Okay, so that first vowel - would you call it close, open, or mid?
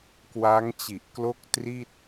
open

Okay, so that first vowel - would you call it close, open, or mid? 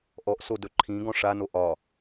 mid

